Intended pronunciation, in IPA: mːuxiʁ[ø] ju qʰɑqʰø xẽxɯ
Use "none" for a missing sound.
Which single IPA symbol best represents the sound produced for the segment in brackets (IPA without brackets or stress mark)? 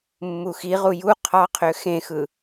u